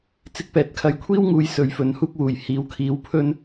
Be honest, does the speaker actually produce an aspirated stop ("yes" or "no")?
yes